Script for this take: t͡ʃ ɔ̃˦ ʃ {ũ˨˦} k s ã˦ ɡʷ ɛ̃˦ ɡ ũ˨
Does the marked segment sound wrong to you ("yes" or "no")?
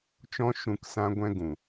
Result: yes